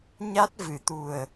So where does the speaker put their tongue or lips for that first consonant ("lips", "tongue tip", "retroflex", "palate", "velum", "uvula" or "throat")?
palate